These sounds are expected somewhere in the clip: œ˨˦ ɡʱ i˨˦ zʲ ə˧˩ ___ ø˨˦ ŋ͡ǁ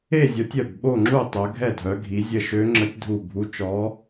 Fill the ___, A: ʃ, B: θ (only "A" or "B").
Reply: A